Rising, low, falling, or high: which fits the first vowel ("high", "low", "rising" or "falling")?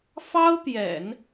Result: high